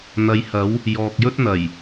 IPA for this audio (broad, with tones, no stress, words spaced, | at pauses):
n̪ɐ˨˧jhɐ˨˥w | jɔː˨k̚jɵ˥t̚n̪ɐ˨˩j